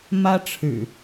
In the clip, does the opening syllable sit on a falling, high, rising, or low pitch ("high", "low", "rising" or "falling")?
high